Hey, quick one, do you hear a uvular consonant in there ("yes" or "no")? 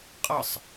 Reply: yes